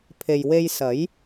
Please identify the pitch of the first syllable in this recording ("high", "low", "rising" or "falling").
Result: low